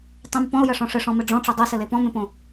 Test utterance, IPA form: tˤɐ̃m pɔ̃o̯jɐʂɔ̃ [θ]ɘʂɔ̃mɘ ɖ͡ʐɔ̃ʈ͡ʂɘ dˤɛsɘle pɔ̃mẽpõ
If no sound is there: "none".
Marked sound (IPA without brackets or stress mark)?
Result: ʂ